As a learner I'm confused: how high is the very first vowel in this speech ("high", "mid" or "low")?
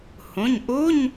high